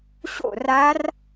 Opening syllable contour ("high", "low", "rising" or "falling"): falling